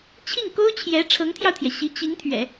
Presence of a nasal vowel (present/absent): absent